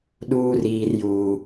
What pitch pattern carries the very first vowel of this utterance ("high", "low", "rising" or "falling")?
high